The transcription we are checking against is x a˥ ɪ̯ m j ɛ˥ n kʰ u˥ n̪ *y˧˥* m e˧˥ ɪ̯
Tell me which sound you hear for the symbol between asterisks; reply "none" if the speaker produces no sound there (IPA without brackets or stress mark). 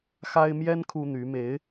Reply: y˧˥